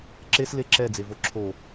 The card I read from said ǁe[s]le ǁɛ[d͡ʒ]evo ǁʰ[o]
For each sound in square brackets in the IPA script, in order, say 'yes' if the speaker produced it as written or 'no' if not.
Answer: yes, no, yes

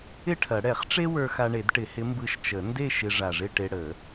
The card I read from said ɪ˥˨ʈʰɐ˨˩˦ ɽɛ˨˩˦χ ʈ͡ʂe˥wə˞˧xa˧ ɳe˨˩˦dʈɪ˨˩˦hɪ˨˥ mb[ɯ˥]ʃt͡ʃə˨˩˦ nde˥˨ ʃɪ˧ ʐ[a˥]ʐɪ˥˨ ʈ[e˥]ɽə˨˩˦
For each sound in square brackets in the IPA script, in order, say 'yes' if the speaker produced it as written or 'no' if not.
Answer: no, no, no

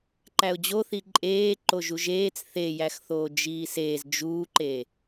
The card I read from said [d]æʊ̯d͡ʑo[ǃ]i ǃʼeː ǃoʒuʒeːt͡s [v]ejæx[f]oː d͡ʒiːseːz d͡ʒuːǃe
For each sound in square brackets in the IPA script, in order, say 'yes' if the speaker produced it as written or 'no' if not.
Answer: no, no, no, no

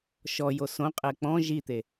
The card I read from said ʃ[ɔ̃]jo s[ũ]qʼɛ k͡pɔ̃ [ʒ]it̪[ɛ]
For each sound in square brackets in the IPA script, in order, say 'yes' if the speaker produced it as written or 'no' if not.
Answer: no, no, yes, no

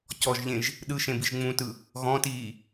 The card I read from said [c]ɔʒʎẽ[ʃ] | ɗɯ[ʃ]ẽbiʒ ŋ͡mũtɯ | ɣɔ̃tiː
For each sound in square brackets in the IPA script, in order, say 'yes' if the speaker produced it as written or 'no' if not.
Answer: yes, no, yes

